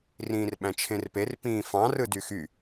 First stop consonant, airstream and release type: implosive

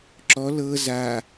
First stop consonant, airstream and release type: click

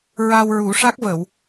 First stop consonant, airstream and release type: plain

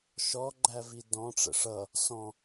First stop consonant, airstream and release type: click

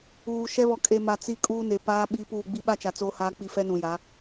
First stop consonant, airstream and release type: ejective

